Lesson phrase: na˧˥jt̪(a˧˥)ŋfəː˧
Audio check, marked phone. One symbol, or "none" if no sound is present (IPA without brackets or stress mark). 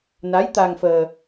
a˧